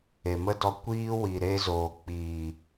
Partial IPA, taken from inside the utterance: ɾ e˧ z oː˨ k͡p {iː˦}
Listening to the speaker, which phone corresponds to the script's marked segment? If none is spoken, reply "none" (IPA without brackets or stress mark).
iː˨